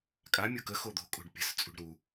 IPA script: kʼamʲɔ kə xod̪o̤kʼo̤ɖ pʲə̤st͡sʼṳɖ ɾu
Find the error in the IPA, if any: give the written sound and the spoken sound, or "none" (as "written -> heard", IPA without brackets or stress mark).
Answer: ɔ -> o